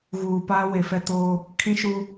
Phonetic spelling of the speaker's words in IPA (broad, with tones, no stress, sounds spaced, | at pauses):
ɣ uː˨ p aː˦ w e˨ f ɛ˦ t oː˦ | kʰ ĩ˦ ʃ u˦